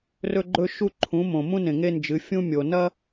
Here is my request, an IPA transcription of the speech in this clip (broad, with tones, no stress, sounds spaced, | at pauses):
r ɵ˦ ɡ͡ǃ ɵ˦ ʃ u˦ ǃʰ ũ˨˦ m õ˨ m ũ˦ n ẽ˨ ŋ e˦ n d͡ʒ ɨ˨˦ fʲ ũ˦ mʲ o˨ n ɐ˦